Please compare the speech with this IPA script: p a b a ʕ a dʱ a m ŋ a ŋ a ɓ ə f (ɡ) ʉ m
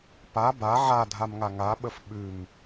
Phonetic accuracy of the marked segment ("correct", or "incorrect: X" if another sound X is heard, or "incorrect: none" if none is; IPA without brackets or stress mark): incorrect: ɓ